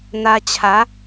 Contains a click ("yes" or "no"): no